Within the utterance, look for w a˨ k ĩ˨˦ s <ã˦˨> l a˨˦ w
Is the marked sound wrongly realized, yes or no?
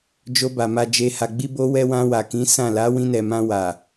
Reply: no